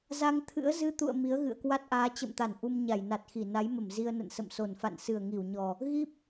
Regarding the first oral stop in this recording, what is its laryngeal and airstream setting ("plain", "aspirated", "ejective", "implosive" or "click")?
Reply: aspirated